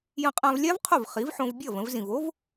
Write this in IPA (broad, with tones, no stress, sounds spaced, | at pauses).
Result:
j ə̃˧ qʼ ã˧ v lʲ a˥ v qʰ o˥˩ v χ i˩˥ v ħ õ˧ v bʲ ʌ˥˩ v ə̃˧ v z ĩ˩ v o˥ v